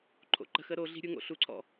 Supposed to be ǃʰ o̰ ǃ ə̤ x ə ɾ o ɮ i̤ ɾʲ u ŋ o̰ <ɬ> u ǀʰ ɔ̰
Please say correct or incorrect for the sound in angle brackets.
correct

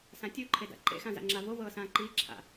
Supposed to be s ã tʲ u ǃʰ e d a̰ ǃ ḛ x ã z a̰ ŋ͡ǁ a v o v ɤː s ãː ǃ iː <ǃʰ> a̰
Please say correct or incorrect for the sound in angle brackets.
incorrect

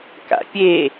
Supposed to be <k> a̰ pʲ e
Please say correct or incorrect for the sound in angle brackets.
correct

